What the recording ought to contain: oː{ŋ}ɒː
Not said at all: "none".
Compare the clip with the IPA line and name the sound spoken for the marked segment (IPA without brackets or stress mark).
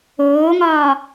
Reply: ŋ